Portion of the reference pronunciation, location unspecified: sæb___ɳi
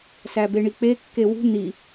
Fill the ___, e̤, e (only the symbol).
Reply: e